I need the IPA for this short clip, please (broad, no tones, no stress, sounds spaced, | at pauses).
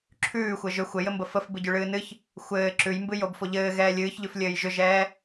ǁʰ ʉː xʷ ɘ ʒ ʏ xʷ ɘ j ɘ m b ə f ə f b ɨ ɟ ʉ ɭ ɨː n ɨ ç | xʷ ɘː ǁ ʉ j m b ɨ j o b f o ʎ ɘː ɣ ɛː lʲ ɨː ç ʎ ʉ f lʲ ɘː j ʒ ʏ ʒ ɛː